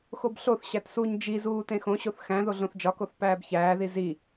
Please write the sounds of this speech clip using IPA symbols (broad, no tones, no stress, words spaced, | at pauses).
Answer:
xobɬoθ ɕætsuɲ d͡ʒizuː tẽxõɕoθ xæ̃ ðoɮõθd͡ʒɒkoθ pæːbçæːði zi